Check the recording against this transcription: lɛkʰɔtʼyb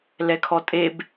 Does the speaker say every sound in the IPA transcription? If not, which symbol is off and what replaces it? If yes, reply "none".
y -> e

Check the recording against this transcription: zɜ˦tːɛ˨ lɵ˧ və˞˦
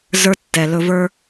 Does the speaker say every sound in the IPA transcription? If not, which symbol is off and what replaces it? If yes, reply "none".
ɜ˦ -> ə˞˦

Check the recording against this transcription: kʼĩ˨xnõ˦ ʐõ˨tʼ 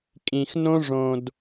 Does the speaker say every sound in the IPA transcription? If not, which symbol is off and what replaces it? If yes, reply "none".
tʼ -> d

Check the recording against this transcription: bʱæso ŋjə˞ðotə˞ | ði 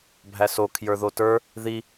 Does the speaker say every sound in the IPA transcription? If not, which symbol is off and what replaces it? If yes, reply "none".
ŋ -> kʰ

